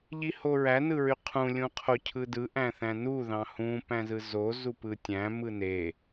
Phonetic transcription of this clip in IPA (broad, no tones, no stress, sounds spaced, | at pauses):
ʎ i h o ɹ æ n ɯ ɹ y qʰ ũ lʲ ũ qʰ o cʰ ɯ d ɯ ʔ æ̃ θ æ̃ n u ð ɑ̃ h ũ p æ̃ z ɯ z o z u p ɯ tʲ æ̃ m ɯ n e